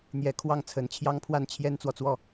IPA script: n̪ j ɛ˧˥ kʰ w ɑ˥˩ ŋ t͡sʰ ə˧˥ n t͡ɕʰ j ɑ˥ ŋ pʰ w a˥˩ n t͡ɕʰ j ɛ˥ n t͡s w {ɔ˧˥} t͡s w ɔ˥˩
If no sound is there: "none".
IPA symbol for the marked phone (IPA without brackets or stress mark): ɔ˨